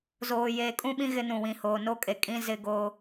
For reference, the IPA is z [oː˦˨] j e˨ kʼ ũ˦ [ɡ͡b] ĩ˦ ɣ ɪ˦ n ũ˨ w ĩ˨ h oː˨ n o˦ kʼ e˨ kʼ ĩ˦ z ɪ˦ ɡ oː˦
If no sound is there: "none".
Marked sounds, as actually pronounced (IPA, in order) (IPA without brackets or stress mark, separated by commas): oː˨, ɓ